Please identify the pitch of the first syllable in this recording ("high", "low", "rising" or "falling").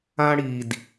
high